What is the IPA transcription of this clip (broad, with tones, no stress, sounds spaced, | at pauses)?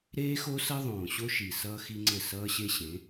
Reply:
ɾ eː˦ x o˦ s ʌ˦ ðˤ õː˨ ɕ o˦ ʃ i˨ s ʌː˦ x i˦ ŋ͡ǀ ɘ˦˨ s ʌː˦ ɕ e˦ ɕ ẽ˨˦